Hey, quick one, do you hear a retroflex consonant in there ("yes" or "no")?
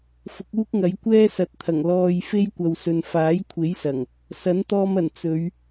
no